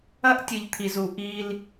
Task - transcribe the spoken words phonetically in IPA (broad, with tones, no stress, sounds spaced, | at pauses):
ɐ˦ ʔ tʲ ɨ˨ ʎ t̪ʰ i˨ z u˨ ʔ i˦ l